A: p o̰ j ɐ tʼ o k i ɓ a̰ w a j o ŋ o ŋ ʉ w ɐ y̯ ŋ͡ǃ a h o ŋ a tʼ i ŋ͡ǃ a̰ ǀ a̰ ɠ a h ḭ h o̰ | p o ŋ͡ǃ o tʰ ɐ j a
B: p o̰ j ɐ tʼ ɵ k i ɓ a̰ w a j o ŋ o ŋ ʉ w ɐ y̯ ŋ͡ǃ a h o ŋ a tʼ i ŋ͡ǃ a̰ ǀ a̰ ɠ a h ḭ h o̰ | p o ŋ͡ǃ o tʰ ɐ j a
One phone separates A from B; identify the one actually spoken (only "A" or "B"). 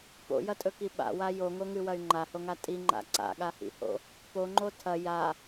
B